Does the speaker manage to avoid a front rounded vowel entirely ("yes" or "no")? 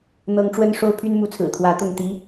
no